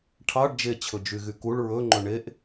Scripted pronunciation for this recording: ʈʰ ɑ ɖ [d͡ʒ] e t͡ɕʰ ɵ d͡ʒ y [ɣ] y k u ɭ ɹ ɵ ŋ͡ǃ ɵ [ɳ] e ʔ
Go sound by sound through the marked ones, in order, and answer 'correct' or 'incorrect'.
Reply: correct, correct, correct

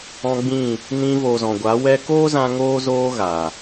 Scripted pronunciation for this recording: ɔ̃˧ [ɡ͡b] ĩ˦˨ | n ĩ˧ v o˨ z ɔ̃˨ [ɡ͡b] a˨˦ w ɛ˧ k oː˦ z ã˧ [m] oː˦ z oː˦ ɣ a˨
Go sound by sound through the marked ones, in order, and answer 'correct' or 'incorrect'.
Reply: correct, incorrect, incorrect

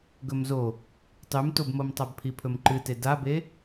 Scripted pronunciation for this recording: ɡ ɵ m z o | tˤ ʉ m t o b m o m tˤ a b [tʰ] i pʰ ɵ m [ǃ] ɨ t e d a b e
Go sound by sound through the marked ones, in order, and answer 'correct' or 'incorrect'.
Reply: incorrect, correct

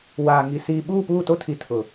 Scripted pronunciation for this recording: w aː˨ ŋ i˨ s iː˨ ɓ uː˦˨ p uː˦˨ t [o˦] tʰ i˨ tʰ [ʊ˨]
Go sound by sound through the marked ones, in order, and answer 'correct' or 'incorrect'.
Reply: correct, correct

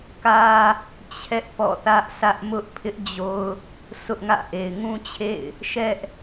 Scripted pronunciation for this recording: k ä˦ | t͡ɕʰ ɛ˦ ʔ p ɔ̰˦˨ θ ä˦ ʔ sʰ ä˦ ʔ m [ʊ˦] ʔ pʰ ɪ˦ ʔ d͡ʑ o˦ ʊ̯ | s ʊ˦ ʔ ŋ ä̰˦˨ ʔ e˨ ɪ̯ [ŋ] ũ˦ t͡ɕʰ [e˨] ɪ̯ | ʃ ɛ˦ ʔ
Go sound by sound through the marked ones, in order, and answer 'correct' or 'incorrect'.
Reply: correct, correct, incorrect

